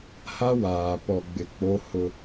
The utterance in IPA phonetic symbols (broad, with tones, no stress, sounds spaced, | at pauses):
h a˦ w aː˨ p ɔ˨ ɡ͡b ɪ˨ k͡p o˦ h ʊ˦